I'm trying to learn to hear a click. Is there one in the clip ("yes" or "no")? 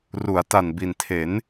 no